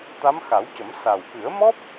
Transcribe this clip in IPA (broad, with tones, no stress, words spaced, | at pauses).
t̪a˧˥mxa˨˩˦wcə˨˩˦m sa˨˩wkɨ˨˩˦ə̯mɔ˦˥p̚